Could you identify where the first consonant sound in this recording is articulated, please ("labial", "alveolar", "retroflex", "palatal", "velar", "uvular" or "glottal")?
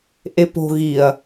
glottal